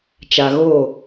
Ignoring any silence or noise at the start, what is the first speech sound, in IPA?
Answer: t͡ʃ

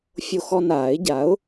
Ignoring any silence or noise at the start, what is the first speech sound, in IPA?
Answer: fʲ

